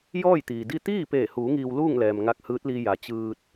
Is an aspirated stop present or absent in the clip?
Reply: absent